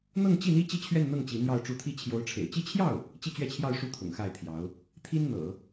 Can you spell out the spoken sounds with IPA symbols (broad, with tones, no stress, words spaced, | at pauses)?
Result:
n̪ɤ˥˧ŋ t͡ɕi˥˩n̪i˥ t͡ɕi˥˧t͡ɕʰɥɛ˥˧nn̪ɤ˥˩ŋ t͡ɕi˧˥n̪jɑ˥˧ʊ̯ʈ͡ʂu˥˧ t̪ʰi˥˩ t͡ɕʰjo˧˥ʊ̯ʈ͡ʂʰḛ˨˩ɪ̯ t͡ɕi˥˧t͡ɕʰjɑ˥˩ʊ̯ | t͡ɕi˥˧t͡ɕɥɛ˥˧t͡ɕʰjɑ˥˧ʊ̯ʂu˥˩ t̪ʰʊ̰˨˩ŋxa˥˩ɪ̯t̪ʰjɑ˧˥ʊ̯ | t̪ʰi˥nn̪ɤ̰˨˩˦